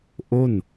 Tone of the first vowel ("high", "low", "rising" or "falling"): falling